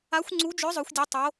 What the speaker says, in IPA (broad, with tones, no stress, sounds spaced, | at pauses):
a˦˥ xʷ ŋ͡ǀ u˦˥ d͡ʒ œ˦˥ zˤ œ˦˥ xʷ dʲ u˦˥ tˤ o˦˥